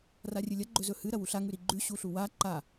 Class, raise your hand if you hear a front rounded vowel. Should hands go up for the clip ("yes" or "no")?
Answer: no